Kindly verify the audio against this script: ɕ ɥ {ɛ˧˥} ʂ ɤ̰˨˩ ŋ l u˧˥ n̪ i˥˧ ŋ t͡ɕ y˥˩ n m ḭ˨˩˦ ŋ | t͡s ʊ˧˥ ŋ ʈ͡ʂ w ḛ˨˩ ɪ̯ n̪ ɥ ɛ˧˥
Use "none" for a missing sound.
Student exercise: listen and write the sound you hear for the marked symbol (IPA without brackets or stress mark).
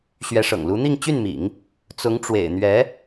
ɛ˧˥